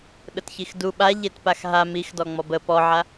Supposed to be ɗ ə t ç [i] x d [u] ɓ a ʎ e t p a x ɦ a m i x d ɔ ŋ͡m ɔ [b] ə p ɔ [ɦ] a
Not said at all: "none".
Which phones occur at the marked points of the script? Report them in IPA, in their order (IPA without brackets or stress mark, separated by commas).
i, u, b, ʕ